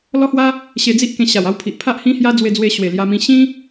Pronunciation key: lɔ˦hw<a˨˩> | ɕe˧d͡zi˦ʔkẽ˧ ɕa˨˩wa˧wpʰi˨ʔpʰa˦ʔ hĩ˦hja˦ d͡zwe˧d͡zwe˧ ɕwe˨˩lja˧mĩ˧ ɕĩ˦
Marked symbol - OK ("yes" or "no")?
no